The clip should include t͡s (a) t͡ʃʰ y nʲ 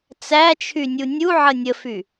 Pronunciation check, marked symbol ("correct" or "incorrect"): incorrect